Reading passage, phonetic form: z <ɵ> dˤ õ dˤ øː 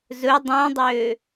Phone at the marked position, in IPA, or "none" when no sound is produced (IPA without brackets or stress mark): ɵ